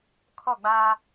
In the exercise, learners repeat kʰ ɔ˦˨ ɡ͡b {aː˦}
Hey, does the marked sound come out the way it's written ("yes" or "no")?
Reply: yes